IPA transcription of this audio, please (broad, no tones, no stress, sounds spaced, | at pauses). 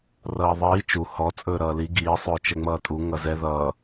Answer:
r ʌː ðˤ iː t͡ʃ u h ɔ t͡sʼ ɵː ɾ ʌː l i ɡ iː sˤ ɵː t͡ʃ ɛ ŋ͡m ʌː tʼ u ŋ ʌ z ɛ ð ʌː